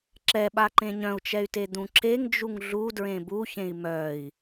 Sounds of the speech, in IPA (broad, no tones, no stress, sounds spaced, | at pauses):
ǁ ɛ ɓ a ǃ ẽ ɲ œ̃ u̯ t͡ʃ ɛ y̯ t e d̪ ũ ǁ e ŋ d͡ʒ u ŋ ɮ u d ɹ ẽ b u ç ẽ i̯ m œ i̯